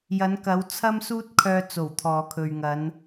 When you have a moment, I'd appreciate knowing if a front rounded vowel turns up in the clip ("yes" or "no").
yes